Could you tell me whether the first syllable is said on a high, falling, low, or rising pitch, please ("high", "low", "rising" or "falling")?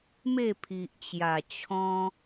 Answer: falling